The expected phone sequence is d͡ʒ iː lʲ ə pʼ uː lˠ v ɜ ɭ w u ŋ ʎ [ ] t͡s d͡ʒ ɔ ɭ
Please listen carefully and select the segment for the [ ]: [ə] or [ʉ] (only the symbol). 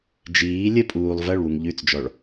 ʉ